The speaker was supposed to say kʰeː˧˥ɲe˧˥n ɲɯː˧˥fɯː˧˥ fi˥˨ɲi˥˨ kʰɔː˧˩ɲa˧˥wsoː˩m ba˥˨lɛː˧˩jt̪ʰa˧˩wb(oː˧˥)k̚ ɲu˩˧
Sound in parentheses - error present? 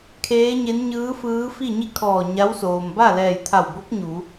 yes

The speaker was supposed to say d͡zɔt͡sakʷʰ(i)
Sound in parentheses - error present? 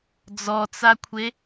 yes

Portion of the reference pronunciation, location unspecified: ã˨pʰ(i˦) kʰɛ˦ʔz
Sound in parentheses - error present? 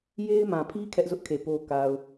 no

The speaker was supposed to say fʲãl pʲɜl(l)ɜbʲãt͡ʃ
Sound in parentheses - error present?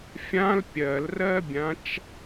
yes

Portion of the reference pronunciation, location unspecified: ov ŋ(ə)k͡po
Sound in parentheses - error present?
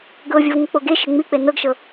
no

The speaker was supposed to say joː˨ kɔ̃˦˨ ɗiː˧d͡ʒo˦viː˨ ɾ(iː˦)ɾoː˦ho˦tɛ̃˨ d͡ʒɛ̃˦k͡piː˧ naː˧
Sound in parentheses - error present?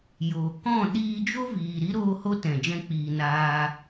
yes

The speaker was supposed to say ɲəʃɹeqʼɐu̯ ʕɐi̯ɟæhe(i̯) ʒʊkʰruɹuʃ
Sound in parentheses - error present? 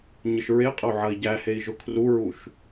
no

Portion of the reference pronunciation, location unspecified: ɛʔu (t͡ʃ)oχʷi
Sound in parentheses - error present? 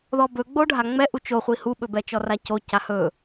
no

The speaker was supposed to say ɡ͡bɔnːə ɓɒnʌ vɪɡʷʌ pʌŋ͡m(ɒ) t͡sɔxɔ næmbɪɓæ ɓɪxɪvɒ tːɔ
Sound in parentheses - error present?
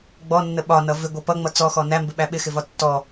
yes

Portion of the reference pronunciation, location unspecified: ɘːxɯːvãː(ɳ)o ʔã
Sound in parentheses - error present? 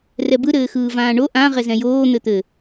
no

